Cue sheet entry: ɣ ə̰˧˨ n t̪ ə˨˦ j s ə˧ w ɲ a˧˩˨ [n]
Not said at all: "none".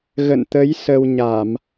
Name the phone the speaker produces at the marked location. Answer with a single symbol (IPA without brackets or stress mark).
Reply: m